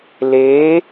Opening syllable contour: rising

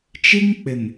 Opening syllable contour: high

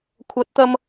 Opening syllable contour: rising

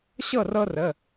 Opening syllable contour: falling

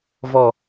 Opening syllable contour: low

